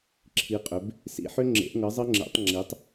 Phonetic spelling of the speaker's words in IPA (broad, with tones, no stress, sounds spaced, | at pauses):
ǁʰ i˩˧ qʼ ʏ˩˧ b | s ḭ˨˩ ħ ʏ˧ ŋ͡ǁ ḛ˩˧ ʔ ŋ ɤ˩˧ zˤ ɤ˧ ŋ͡ǁ ḛ˩˧ tˤ ŋ͡ǁ i˩˧ tˤ